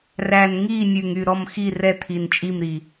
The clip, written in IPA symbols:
r æ˨˩ n ŋ iː˦˨ nʲ ʉ˨˩ ŋ y˦˨ ɾ ɔ˦˨ m x i˦˨ r ɛ˦˨ t̪ʰ i˨˩ n t͡ʃʼ i˦˨ m ɾ i˨˩

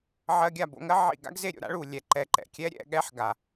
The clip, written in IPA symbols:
ʕ ɜ˧ ɡʲ a˦˨ b o̰˧ ŋ ɜ˦ ʕ ḭ˦˨ ɡ a̰˦ ɡ z e˦˨ ɾʲ o̰˧ ɾ a̰˦ ɭ u˨ lʲ ɛ˨ ǃ ɛ˧ ǃ ɛ̰˨ kʲ ɛ˦ ɾʲ ɛ̰˧ ɠ ɛ˦ ħ ɡ a˨

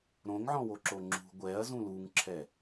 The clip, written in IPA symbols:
ɾ õ ŋ ʕ ɔ̃ w o ǁ o ŋ͡ǁ ṳ ɡʷ ɛ ɐ̯ z ũ l u ŋ ǁʰ ɛ

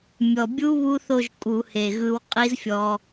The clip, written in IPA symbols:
mʲ ɔ˨˩ bʲ u˦˥ β u˦˥ θ o˥˧ ʒ kʼ u˧˩˧ h e˨˩ ɣ ɯ˧ w qʼ i˦˥ z fʲ ɔ˧

